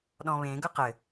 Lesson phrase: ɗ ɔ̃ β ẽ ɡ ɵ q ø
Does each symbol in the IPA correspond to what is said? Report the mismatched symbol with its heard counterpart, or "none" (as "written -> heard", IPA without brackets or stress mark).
ø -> ɘ